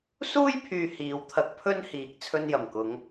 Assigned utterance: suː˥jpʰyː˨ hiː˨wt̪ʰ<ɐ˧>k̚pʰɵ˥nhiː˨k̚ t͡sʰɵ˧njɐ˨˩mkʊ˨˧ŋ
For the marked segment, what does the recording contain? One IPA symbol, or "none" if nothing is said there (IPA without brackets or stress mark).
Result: ɐ˧